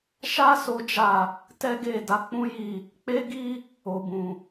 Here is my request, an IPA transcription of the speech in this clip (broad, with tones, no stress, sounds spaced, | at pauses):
ʃ a˦ s o˦ d͡ʒ a˦˨ | t ɛ˦ ɡ e˦˨ d a˨˦ k͡p ũ˦ j i˦˨ | k͡p e˦ ɡ i˦ | o˨ b ũ˨